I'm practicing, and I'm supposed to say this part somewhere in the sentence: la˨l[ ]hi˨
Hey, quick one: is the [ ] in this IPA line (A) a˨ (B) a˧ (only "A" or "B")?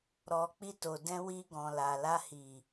B